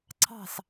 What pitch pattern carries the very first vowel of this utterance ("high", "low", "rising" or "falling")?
falling